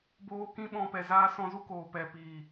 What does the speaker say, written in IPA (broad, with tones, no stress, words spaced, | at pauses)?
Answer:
boː˧kĩ˦ ɓɔ̃˧pɛ˨ zaː˧sɔ̃˧zu˦ koː˨pɛ˨ piː˨